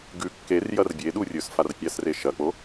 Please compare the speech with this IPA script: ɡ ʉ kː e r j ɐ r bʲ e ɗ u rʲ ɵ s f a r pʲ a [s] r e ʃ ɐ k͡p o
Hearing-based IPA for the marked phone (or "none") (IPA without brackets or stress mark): s